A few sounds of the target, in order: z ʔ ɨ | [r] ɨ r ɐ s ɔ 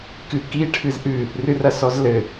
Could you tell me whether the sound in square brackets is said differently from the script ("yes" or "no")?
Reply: no